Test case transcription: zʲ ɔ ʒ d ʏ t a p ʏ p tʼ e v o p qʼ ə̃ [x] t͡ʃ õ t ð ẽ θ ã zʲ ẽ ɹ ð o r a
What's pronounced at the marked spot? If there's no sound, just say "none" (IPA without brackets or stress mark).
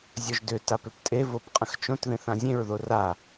x